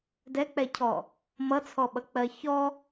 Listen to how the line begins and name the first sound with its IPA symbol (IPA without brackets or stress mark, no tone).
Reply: d